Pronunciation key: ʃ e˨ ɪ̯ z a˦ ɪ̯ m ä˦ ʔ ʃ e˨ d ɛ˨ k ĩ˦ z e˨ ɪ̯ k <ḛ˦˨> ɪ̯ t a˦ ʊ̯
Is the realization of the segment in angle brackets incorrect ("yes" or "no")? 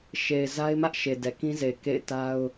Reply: no